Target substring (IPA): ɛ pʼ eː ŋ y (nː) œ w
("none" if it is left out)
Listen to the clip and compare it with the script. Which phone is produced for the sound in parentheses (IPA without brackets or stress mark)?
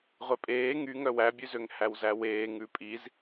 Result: ŋ